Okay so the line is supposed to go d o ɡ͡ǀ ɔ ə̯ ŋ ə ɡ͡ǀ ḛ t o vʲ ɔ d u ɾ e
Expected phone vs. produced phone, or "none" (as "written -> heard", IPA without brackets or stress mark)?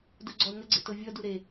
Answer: none